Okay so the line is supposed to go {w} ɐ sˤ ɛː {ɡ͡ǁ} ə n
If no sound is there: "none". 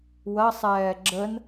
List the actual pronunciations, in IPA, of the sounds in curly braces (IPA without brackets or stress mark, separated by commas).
w, ɡ͡ǁ